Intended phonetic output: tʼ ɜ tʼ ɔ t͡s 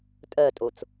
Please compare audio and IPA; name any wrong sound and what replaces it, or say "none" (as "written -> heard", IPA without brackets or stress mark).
ɔ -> o